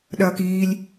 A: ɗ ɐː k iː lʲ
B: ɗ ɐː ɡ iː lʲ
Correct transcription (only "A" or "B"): A